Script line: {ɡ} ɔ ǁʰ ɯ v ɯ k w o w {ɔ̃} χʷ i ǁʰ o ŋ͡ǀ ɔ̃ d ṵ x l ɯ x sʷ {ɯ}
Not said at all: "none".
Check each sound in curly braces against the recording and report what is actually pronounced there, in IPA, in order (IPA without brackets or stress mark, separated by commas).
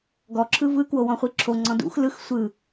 ɡ, ɔ̃, ɯ